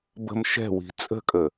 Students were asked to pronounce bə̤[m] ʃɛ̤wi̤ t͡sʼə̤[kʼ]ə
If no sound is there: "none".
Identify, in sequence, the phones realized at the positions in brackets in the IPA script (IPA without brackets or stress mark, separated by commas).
m, kʼ